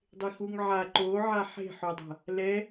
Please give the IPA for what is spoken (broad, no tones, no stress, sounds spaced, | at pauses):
dˤ e x u ŋ ʕ a ǃ o ʕ a ħ e̤ ħ o dˤ a̤ | l ɛ